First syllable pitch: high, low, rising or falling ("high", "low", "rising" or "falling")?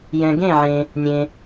low